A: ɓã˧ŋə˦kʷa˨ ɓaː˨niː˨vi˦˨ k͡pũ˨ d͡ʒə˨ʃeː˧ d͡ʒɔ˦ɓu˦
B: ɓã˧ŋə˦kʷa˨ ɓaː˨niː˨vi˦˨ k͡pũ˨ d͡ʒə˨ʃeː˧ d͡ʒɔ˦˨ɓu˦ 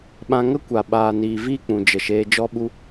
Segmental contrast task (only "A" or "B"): A